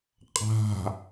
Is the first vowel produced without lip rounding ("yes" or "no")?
yes